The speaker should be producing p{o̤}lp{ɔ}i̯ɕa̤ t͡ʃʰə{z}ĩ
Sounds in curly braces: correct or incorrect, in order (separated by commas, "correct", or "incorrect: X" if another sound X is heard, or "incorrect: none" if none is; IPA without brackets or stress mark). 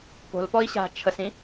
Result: correct, correct, incorrect: s